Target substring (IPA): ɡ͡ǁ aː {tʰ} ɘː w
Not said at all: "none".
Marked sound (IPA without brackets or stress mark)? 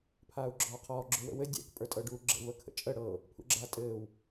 tʼ